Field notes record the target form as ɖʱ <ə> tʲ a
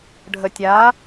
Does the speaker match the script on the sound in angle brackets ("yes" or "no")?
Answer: yes